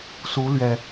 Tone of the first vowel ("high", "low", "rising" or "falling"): rising